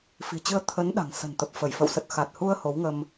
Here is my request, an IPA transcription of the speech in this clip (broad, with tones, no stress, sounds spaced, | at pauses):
f i̤˨˩ t͡ɕ ɨ˧ ə̯ t̪ʰ ə˨˦ n ɗ a̤˨˩ ŋ s ə̤˨˩ n t̪ ə˨˩ p̚ f ə˧˩ j f ə̰˧˨ w s ə˨˩ t̚ x a˨˩ t̚ h u˧ ə̯ h o˨˦ w ŋ ə˧ m